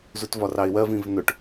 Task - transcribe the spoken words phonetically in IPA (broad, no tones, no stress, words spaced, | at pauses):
zutvɒrɑɪ̯wɜv ĩvnʊʈ